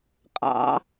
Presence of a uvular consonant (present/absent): present